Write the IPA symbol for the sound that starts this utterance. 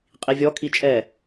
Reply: qʼ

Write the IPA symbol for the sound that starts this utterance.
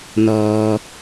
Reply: n̪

